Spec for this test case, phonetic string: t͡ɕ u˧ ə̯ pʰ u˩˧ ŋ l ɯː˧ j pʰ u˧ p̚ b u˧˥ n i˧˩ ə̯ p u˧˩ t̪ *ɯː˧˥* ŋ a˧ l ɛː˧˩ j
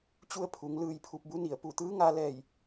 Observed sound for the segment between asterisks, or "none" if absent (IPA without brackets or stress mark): ɯː˧˥